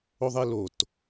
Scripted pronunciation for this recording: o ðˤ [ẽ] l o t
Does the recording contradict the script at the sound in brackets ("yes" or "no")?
yes